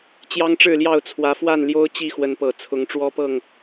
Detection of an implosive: absent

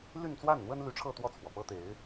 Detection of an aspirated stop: present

